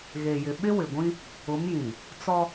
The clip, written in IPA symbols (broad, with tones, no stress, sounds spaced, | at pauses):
ɣ e˨ j ɪ˨ ɓ ɪ˦ w ɪ˨ ɡʷ ĩ˦ | ʊ˨˦ m j ĩ˨ | t͡s ɔ˦